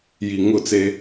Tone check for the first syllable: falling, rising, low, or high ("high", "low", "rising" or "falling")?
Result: low